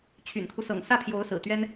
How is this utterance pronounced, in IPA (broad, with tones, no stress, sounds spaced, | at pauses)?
t͡ɕʰ y̰˨˩ n kʰ u˦ s ɤ̰˨˩ ŋ s ä˥˩ pʰ j o˧˥ ʊ̯ s ɹ̩˨˩ t̪ ɥ ɛ˥ n